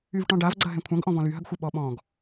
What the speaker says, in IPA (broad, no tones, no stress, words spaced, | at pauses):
yvʈɔ̃ɖavɡ͡ǀɐ ɦɛ̃kʷʰɐ̃ɡ ʔɔ̃vɔ̃lyɦɐɡ xʷɨɓɔ ɓɔ̃ɡ